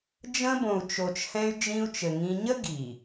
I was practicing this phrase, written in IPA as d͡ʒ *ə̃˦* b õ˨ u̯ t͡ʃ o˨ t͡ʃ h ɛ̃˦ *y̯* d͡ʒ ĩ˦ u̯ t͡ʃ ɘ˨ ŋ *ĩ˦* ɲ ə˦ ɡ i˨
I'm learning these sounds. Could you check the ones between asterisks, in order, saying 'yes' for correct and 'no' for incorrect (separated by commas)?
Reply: yes, yes, yes